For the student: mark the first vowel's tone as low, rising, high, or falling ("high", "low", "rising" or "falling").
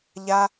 high